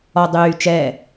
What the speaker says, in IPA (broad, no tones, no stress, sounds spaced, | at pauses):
ɔ dˤ yː t͡ʃ ɛ